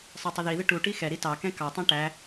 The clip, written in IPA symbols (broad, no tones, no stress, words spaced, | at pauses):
sˤɑtˤɪðiðɪ ʈuʈi xɛɾi tɑkɛ̃ kɑtˤɛ̃ ʈæ